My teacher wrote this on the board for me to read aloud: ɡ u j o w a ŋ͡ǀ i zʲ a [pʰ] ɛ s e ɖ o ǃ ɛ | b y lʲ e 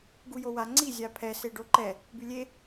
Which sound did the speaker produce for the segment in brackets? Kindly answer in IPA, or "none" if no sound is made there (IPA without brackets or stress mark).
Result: pʰ